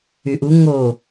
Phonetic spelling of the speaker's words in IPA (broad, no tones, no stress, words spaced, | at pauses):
yʔu ŋo